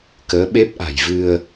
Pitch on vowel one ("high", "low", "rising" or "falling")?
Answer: rising